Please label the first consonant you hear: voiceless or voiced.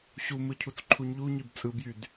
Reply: voiceless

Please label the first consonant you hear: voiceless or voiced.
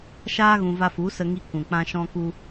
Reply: voiceless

